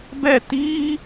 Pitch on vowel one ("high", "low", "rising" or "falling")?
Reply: falling